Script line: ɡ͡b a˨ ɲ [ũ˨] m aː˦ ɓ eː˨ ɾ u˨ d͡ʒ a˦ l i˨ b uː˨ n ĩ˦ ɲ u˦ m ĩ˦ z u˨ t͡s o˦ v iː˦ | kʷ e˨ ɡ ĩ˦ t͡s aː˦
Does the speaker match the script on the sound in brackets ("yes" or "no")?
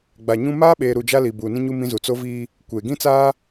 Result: no